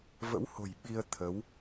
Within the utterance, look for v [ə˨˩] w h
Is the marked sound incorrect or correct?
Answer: incorrect